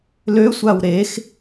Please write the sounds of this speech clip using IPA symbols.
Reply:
l ø sʷ a w ɾ e x

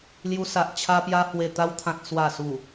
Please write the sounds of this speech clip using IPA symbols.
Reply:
l j u˧ s a˨ ʔ t͡ɕʰ a˧ p j a˧ h w e˨˩ t̪ a˧ w t̪ʰ ã˨ t̚ s w a˨˩ s u˨˩

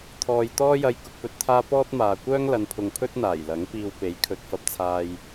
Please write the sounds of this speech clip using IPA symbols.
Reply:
t̪ʰ ɔː˨ j t̪ ɔː˥ j ɐ˧ j k ʊ˧ k̚ p ɵ˨˥ t̚ t̪ʰ aː˥ p ɔː˥ t̚ m aː˨ kʷ œː˥ ŋ l ɐ˨˧ n pʰ ʊ˨ ŋ pʰ ɵ˥ t̚ n̪ aː˨˩ j l ɐ˨˥ ŋ p iː˧ w p e˨˥ j kʰ ɵ˨ t̚ f ɐ˧ p̚ t͡sʰ aː˧ j

